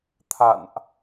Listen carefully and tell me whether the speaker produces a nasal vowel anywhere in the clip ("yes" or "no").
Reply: no